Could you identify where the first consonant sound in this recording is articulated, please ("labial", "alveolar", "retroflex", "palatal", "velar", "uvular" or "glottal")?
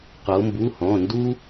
uvular